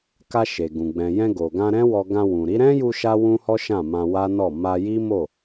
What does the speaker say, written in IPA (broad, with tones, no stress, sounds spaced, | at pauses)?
k a˧ ʃ e˨ ɡ ũ˨ ɡ͡b ɛ̃˨ j ɛ̃˧ ɡ o˨ ɡ ã˧ ɾ ɛ̃˦ w ɔ˧ ɡ ã˧ w ũ˨ ɾ i˨˦ ɾ ɛ̃˦ j u˧ ʃ a˦ w ũ˦ h ɔ˦ ʃ ã˦˨ m ã˧ w a˦ n ɔ˦˨ m a˧ j i˦ m o˦˨